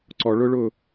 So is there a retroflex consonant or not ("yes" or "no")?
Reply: yes